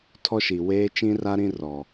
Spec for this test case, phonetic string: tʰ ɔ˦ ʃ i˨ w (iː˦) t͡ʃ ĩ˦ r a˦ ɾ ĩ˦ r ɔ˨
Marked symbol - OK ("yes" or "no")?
no